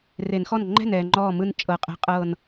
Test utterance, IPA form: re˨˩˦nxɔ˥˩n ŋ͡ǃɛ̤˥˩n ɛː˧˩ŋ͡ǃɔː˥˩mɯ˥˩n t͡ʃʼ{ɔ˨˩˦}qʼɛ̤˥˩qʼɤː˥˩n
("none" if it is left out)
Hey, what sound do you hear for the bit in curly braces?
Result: ɤ˨˩˦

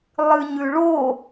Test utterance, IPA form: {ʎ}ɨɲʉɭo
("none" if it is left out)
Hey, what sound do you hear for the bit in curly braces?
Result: lˠ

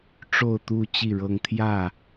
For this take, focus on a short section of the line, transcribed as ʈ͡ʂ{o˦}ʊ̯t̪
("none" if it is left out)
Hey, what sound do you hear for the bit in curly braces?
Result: o˥˨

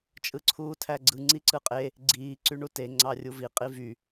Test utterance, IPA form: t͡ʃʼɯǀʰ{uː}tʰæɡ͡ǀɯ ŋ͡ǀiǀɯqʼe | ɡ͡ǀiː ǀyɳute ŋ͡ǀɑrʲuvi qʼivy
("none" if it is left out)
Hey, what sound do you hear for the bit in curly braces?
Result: uː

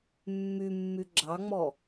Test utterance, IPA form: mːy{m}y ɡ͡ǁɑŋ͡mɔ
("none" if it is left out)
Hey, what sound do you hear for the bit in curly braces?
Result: mː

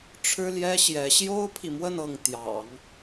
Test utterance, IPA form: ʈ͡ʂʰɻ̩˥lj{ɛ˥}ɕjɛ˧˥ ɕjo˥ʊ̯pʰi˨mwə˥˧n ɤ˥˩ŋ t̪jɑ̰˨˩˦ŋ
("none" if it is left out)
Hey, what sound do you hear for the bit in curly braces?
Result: ɛ˥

